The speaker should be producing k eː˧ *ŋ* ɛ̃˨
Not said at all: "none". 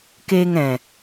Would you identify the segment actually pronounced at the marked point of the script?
ŋ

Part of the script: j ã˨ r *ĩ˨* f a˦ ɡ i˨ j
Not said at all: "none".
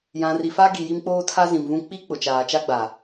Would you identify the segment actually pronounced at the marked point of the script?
i˨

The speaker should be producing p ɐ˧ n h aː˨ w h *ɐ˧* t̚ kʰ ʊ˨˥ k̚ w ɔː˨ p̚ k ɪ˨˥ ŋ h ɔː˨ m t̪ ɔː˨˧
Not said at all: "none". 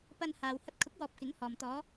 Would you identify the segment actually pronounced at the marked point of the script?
ɐ˧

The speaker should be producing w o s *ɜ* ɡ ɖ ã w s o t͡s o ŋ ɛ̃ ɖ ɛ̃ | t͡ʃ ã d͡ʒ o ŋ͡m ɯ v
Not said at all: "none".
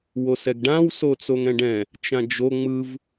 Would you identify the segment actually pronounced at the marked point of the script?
ɛ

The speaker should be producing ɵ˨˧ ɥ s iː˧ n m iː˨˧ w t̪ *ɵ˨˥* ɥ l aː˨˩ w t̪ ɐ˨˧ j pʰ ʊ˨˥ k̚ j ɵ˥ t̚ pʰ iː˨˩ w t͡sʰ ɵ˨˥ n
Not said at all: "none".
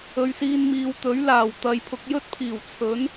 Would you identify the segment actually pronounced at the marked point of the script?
ɵ˨˥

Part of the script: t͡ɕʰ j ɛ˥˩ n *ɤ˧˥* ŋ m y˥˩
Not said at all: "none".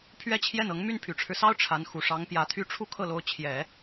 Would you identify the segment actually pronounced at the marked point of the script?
ɤ˧˥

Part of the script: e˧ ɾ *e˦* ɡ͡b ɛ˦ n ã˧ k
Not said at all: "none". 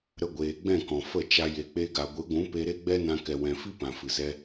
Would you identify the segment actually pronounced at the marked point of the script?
e˦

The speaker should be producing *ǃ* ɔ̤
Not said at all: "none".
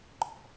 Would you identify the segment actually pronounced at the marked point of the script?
ǃ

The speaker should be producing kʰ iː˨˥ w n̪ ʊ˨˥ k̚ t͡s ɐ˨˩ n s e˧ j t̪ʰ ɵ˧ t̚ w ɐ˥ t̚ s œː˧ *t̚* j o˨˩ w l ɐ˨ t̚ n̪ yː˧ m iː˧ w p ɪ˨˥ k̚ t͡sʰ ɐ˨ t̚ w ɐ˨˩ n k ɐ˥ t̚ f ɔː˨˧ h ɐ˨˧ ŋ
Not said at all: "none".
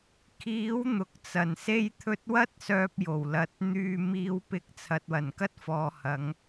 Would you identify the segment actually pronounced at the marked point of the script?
p̚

